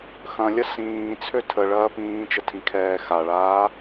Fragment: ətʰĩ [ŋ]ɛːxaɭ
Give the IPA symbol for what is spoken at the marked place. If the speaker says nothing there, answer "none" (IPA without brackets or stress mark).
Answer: kʰ